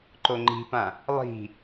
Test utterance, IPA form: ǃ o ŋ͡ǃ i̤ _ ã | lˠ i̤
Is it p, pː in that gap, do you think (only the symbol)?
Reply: p